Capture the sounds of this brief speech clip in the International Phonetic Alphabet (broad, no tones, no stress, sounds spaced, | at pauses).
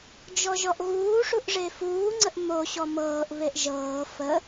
d͡ʒ ɔ ʒ ɔ ʔ ɣ uː ʂ u ʔ ʐ e f uː ŋ͡ǀ ə ʔ m o ɕ ɔ m ɤː ʔ β e ʔ ʒ ɤː f ə